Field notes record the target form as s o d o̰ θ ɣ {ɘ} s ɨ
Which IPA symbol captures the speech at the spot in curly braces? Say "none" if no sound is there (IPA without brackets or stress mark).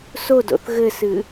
ɘ